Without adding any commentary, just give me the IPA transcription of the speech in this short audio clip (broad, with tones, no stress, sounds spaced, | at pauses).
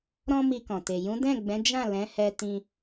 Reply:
ɾ ɔ̃˦ m i˧ k ɔ̃˨ t e˨ j ũ˨˦ d ɛ̃˦˨ ɡ͡b ɛ̃˨˦ d͡ʒ ã˦˨ l ɛ̃˨˦ h ɛ˧ t ĩ˦